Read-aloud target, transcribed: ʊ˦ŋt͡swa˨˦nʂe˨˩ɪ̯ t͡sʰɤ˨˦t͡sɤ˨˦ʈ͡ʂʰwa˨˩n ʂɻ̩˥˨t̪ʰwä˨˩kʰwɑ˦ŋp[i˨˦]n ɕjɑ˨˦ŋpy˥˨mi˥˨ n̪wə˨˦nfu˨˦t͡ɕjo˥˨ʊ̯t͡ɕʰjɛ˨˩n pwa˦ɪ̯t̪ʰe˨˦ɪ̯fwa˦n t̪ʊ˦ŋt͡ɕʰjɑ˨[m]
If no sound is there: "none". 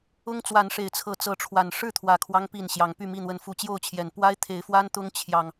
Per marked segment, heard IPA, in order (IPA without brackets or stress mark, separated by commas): i˨˩, ŋ